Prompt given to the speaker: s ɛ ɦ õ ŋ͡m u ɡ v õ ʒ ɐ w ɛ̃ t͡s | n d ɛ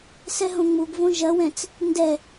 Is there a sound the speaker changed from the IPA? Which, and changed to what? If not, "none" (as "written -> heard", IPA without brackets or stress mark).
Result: none